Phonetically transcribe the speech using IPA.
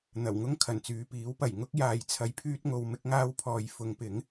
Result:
n̪ɐ˨˩wŋʊ˥ŋ kʰɐ˨˩nt͡syː˨˧piː˨˥w pɐ˨˩jŋʊ˥k̚ jaː˧jt͡sʰɐ˧jpʰyː˥t̚ ŋo˧w mɪ˥k̚ŋaː˥wpʰɔː˧j fʊ˨˧ŋpɪ˨˥ŋ

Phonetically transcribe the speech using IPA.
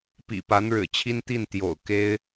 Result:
pḭ˨˩pa˧˥nɻɻ̩˨˩t͡ɕʰi˥n t̪i˥˩nt̪jo̰˨˩ʊ̯ ke˥ɪ̯

